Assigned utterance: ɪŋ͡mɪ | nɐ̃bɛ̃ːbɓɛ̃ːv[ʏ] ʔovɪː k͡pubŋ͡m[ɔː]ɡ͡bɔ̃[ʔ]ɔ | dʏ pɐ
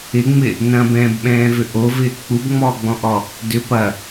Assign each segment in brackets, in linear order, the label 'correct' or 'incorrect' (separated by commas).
correct, correct, correct